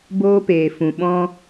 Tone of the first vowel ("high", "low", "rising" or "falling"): high